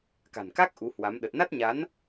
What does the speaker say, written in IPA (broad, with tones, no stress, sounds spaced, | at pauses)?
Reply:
k a̤˨˩ n k a˦˥ k̚ ʔ u˨˦ h w a˨˦ m ɗ ə˨˩ t̚ n a˦˥ t̚ ɲ a˨˦ n